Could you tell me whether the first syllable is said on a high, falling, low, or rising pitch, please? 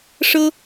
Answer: high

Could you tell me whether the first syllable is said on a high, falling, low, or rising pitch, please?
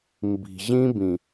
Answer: low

